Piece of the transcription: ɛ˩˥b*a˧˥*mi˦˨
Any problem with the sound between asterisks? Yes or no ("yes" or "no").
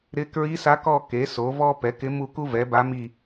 no